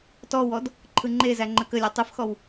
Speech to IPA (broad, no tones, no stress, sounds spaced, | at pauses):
t ɔ w ɔ d | ǃʰ ɯ ŋ͡ǃ e z æ ŋ͡ǃ ə k ə lʲ æ tˤ ɯ f x ɔ w